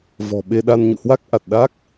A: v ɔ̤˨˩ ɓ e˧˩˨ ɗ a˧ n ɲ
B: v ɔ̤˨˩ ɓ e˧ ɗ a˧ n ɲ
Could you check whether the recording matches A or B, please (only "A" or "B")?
B